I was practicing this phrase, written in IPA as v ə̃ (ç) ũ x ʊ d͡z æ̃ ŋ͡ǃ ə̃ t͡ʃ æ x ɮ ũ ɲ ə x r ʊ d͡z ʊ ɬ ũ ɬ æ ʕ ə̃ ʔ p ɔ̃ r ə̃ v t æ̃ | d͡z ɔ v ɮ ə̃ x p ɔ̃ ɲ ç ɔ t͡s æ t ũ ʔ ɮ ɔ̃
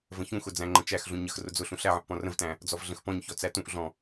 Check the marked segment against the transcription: correct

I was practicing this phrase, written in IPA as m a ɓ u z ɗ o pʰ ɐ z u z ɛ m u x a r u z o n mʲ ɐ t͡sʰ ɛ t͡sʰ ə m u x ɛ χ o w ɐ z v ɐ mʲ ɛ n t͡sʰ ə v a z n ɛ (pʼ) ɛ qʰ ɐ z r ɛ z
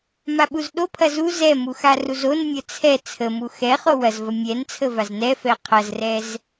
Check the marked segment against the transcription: incorrect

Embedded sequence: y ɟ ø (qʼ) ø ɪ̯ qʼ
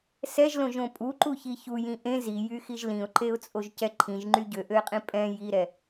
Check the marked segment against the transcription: incorrect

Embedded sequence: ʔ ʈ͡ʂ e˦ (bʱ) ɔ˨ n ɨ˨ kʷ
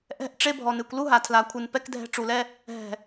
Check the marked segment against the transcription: correct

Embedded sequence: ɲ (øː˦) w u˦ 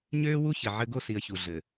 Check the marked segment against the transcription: correct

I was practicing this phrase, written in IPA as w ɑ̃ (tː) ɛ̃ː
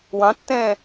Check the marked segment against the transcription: correct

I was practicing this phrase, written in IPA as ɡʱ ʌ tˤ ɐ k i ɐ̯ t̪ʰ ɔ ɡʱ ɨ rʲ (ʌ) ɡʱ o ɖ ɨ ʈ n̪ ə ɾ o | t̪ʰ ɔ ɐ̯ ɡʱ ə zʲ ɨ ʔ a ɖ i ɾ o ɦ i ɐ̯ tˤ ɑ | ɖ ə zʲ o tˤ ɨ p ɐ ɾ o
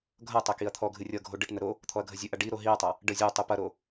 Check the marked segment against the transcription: correct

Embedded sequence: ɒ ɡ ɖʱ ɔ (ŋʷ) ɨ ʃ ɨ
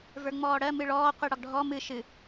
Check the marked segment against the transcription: incorrect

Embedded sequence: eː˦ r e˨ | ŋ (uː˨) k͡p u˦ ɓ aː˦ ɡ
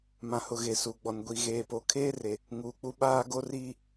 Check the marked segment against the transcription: correct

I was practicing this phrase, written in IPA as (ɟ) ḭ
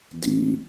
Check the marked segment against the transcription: incorrect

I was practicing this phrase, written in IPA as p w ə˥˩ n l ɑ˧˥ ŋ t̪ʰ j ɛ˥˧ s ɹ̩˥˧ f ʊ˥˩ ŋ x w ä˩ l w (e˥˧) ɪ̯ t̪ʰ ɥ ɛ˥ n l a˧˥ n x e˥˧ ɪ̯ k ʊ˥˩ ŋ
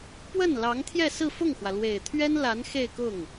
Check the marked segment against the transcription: incorrect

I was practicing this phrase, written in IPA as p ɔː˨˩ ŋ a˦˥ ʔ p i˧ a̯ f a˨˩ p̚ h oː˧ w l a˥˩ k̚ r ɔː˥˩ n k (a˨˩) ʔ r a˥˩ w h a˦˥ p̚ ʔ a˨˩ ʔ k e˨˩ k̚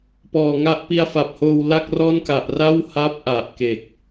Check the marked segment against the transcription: correct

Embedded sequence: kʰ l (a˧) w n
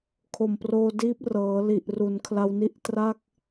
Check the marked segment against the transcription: correct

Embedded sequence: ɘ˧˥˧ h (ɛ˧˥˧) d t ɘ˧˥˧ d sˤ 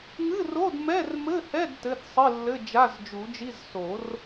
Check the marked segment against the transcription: correct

